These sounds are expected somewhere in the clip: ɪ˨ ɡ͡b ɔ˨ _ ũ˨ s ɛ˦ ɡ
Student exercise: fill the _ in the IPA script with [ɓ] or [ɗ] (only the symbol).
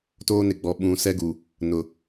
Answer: ɓ